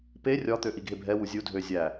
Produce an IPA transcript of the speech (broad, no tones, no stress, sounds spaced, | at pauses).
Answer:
p e rʲ ɒ t̪ ø ʔ i ɡʱ e bʱ ɛ w u zʲ u dʱ ø zʲ æ